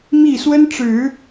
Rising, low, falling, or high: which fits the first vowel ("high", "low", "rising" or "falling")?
falling